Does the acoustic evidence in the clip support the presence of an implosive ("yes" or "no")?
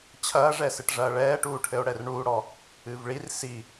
no